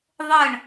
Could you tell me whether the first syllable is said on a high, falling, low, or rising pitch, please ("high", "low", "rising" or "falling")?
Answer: falling